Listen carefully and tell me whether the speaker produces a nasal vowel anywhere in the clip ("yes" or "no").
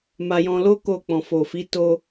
yes